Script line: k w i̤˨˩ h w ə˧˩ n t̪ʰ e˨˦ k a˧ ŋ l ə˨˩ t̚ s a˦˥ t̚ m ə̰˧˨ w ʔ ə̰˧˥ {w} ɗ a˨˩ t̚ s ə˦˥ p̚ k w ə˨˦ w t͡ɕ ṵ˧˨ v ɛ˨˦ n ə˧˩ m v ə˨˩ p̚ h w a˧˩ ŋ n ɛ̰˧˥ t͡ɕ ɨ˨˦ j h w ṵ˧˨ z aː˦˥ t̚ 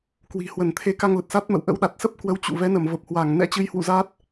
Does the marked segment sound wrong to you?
no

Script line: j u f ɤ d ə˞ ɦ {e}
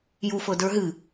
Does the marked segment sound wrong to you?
yes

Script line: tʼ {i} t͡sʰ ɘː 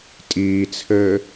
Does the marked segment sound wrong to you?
yes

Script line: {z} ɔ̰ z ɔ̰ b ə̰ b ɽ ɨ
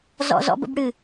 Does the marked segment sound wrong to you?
no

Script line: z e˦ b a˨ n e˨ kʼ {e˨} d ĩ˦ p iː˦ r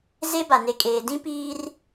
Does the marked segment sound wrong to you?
yes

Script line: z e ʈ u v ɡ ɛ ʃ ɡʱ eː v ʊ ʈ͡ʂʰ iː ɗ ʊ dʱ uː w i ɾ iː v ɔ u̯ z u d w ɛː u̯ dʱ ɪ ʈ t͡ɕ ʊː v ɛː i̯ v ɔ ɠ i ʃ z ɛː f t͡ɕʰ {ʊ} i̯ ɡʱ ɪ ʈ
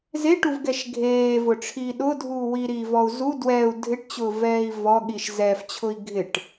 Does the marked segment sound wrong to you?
no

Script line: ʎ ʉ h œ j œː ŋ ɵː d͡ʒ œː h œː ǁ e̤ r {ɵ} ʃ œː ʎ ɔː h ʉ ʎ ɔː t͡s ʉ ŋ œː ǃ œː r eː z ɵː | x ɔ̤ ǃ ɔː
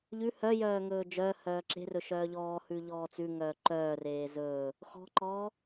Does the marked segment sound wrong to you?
no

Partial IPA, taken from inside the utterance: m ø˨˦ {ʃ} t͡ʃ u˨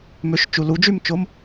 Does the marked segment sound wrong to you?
no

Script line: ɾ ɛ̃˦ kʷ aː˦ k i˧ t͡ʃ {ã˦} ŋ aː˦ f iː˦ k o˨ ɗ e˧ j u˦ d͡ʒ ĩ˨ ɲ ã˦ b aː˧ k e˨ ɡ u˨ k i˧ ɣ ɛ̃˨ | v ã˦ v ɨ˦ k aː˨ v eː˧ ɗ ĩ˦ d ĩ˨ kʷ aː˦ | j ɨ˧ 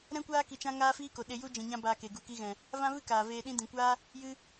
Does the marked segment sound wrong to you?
no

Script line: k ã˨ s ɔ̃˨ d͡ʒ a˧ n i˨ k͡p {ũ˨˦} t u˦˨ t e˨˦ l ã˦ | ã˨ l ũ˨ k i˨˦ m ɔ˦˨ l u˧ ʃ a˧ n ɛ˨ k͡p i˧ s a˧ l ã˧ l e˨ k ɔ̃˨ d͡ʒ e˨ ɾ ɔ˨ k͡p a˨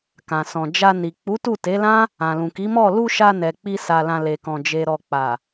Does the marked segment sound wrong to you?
yes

